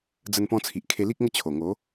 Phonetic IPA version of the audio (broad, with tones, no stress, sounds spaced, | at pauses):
d͡z ə˧ n p ɔ̃˧ t͡sʰ i˨ ʔ kʰ e˧ l i˦ k̚ ŋ ə˦ t͡ɕʰ o˨˩ ŋ o˨˦